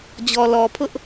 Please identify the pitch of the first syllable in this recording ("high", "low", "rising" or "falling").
low